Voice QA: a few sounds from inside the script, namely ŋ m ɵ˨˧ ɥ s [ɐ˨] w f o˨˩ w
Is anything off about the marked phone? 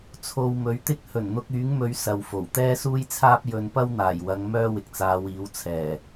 no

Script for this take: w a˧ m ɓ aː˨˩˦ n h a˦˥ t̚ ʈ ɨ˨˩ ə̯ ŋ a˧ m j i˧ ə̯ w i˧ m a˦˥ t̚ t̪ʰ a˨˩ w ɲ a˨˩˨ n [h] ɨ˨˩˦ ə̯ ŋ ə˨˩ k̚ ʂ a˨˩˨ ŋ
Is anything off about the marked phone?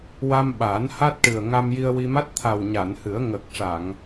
no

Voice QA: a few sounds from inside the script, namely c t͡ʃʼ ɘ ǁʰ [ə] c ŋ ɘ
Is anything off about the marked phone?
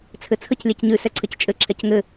yes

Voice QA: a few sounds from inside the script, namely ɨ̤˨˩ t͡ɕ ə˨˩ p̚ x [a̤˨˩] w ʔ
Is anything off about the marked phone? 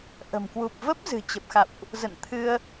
yes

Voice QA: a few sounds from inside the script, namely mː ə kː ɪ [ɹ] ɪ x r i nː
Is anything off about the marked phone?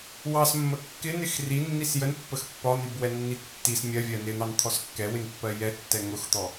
yes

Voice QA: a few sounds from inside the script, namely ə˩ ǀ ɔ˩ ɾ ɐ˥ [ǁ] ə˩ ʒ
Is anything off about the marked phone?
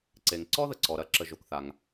no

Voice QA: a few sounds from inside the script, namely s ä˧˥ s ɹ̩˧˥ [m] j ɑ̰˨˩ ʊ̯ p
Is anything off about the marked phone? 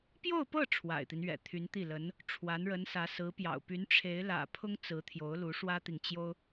yes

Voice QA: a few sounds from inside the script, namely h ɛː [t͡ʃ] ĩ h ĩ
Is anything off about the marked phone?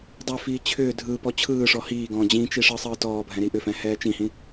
no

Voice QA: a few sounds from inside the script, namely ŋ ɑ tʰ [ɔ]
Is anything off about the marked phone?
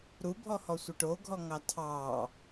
yes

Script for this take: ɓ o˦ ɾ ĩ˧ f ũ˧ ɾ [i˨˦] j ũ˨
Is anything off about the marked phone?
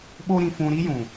yes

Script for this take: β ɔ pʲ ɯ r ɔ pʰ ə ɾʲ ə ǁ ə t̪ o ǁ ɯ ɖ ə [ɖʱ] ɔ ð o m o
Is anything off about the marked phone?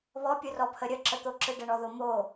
yes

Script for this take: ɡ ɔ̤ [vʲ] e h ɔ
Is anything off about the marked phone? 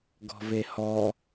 yes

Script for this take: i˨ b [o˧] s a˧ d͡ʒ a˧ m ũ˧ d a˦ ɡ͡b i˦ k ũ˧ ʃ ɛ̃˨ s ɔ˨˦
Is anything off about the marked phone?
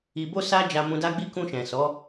no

